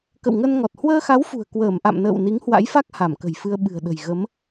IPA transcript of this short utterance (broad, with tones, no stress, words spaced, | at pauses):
kə̰˧˨wŋə˧nŋɔ˨˩t̚ hwəː˧xa˨˦wfṳ˨˩ə̯ kwəː˧˩mʔa̰˧˨mnə̰ː˧˨w ni˨˦ŋhwa̰˧˥jfa˦˥k̚ ha˧˩mkə̤˨˩jfɨ˧ə̯ ɓɨ̤˨˩ə̯ɗə̤˨˩j ɣə˨˦m